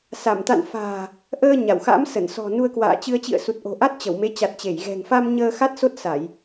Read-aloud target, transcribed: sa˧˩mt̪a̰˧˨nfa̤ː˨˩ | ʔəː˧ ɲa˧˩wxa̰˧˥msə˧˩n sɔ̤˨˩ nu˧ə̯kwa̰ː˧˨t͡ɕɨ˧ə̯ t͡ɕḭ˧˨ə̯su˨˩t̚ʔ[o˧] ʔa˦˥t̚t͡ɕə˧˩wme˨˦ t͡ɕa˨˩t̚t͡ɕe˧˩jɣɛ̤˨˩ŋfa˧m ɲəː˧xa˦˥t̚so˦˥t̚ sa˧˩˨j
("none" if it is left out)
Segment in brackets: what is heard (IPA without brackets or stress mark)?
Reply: o̤˨˩